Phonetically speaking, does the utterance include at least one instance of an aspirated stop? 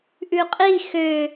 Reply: no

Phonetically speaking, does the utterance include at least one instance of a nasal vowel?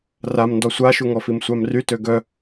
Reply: no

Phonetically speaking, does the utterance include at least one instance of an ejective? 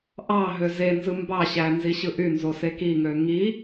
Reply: no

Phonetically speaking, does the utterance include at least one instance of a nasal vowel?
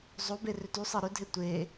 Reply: no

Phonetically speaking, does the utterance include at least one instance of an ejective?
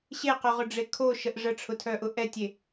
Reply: no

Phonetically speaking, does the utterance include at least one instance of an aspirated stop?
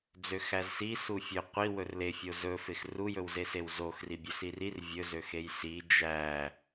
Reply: no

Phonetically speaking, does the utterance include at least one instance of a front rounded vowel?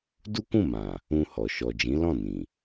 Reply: no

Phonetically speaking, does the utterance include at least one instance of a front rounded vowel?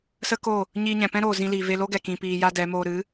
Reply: no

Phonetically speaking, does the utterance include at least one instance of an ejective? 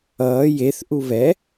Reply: no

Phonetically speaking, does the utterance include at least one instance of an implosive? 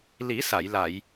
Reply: no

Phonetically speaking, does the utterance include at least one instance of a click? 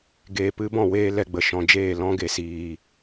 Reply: no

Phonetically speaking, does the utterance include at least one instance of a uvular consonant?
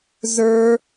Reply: no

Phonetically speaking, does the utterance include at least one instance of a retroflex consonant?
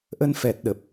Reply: no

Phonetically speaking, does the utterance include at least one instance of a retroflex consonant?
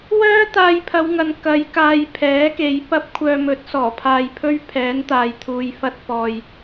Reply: no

